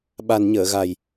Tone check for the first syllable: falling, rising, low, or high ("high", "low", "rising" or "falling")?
low